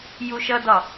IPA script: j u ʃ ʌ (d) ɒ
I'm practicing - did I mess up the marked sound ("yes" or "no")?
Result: no